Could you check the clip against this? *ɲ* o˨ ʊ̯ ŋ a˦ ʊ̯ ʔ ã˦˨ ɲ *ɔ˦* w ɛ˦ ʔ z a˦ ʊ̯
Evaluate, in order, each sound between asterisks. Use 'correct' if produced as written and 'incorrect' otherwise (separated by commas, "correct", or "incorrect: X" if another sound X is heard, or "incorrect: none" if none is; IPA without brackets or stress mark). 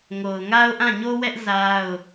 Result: incorrect: ŋ, incorrect: o˦